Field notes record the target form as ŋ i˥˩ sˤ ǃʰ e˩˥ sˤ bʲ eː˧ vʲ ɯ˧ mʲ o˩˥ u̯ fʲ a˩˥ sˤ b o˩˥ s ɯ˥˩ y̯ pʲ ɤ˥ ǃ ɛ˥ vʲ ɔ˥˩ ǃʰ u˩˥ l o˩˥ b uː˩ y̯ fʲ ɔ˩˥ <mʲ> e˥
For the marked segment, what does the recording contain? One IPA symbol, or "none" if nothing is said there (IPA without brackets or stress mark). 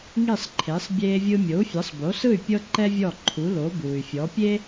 pʲ